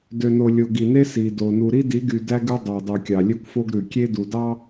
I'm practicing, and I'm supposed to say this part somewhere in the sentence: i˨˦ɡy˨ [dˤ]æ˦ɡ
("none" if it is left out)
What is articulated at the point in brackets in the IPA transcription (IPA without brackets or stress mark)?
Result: d